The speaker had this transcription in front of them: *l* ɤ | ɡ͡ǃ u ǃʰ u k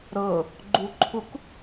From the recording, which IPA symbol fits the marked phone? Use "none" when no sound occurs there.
ɾ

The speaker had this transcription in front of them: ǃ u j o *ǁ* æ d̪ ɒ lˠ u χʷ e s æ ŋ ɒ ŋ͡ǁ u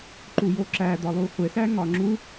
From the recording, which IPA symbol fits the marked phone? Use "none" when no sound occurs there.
ǁ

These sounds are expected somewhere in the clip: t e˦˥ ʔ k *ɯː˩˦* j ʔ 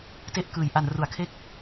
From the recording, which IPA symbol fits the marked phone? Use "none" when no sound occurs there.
ɯː˩˦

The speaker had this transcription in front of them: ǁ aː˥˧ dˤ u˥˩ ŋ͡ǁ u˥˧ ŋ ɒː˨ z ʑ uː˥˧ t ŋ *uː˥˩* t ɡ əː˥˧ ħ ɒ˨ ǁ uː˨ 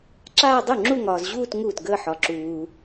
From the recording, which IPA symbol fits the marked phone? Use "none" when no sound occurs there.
uː˥˩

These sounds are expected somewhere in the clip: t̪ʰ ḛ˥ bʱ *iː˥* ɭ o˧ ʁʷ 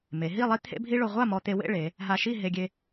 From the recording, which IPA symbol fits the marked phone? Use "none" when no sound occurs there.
i˥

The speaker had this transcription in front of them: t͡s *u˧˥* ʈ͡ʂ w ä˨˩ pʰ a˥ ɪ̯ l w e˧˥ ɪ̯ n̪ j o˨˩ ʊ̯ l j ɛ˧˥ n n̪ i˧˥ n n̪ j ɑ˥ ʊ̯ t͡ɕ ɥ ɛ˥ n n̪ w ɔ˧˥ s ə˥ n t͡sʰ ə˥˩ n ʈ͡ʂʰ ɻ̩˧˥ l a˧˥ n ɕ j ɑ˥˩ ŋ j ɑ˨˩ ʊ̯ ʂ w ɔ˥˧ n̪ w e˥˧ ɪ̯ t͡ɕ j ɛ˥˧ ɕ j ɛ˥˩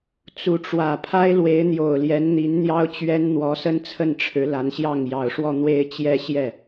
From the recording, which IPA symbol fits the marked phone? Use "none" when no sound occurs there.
u˧˥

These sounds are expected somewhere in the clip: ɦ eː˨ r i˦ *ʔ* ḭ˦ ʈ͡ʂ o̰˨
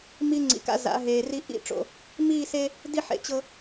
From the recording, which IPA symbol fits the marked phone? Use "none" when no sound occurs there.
ʔ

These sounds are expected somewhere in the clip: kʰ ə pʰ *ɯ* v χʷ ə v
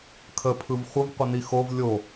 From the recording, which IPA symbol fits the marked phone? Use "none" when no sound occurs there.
ɯ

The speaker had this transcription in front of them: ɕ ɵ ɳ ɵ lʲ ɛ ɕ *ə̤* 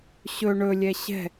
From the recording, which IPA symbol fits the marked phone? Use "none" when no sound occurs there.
ɛ̤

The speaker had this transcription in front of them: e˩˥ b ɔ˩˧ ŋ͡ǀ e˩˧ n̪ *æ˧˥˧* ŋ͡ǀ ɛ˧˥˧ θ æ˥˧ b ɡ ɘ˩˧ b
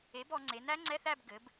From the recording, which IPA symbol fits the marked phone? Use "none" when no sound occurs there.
æ˦˥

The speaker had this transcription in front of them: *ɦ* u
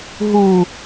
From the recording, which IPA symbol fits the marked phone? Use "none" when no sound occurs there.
ɦ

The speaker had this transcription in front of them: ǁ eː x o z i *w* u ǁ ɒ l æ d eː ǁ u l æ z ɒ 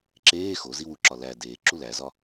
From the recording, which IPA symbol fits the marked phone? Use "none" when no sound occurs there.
w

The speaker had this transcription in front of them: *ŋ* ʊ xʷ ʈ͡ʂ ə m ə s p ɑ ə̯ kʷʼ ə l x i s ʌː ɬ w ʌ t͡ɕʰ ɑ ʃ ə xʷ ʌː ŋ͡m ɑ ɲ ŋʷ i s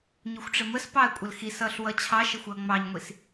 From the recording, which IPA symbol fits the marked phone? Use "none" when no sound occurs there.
ɲ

